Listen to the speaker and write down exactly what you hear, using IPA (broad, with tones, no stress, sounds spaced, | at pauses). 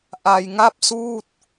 ʔ a˧ j ŋ a˥˩ p̚ s uː˥˩ t̚